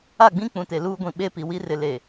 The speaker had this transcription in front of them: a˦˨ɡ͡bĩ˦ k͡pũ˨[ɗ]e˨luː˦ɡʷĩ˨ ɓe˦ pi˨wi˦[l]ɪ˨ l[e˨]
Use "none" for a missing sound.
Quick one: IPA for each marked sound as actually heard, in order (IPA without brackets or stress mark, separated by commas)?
t, r, e˨